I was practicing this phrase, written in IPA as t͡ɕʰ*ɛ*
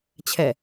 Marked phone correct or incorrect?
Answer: correct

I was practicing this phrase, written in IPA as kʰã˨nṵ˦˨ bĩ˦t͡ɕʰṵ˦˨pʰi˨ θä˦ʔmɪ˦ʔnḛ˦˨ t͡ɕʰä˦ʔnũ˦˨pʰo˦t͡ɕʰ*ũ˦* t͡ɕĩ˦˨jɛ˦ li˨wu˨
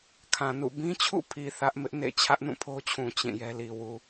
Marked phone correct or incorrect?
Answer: incorrect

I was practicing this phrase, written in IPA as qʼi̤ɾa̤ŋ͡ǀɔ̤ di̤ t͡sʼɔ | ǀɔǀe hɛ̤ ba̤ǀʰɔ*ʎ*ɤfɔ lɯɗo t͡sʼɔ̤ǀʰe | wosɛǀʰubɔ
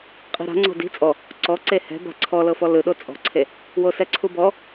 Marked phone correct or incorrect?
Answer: incorrect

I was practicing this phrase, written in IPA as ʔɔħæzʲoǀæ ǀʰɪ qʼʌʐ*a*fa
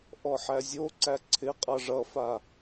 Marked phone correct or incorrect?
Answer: incorrect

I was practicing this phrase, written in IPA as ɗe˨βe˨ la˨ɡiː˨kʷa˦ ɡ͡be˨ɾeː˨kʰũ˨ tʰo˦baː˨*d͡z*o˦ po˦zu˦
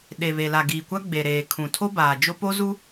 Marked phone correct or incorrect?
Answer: incorrect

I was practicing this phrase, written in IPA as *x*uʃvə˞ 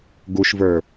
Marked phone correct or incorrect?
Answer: incorrect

